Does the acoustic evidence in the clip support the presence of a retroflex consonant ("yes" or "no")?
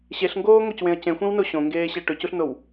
yes